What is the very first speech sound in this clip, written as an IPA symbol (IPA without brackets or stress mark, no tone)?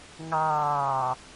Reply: ŋ